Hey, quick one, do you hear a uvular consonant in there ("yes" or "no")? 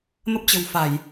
no